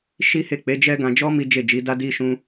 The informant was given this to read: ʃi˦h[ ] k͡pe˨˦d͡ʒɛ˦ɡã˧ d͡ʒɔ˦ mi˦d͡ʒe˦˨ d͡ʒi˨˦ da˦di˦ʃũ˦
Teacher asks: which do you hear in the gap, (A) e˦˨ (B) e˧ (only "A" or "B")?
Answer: A